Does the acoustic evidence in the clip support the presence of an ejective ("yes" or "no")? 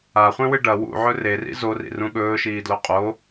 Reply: yes